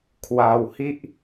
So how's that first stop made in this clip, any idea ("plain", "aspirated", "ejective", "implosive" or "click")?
aspirated